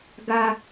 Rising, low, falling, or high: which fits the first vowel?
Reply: high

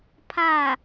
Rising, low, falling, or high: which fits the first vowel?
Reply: falling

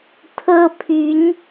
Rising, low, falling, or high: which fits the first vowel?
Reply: high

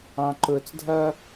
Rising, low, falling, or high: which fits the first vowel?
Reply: high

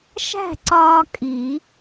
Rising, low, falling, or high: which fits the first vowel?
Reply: falling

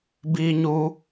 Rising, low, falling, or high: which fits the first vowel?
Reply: high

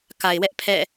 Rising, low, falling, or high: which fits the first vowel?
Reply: low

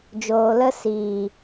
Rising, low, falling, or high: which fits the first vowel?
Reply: low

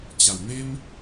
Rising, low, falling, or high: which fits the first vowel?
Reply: low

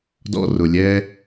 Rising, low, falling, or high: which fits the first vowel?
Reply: high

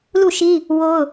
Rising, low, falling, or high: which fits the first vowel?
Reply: falling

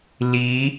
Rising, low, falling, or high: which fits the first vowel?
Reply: rising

